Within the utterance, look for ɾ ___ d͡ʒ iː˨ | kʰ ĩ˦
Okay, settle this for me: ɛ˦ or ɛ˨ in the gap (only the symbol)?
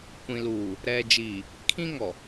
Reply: ɛ˨